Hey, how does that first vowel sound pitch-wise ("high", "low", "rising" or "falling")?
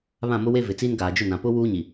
falling